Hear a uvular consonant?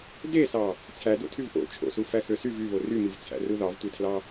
no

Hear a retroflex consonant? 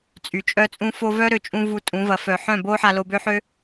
no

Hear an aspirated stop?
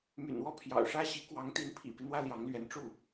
yes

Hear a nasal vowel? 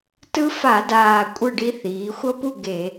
no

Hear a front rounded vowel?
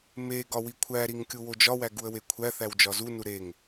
no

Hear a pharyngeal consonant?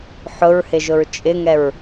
yes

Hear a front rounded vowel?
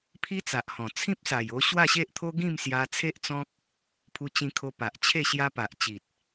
no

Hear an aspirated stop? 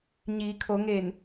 yes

